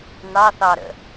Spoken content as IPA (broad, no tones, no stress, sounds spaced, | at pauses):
n ɑ θ ɑ ɾ ə̰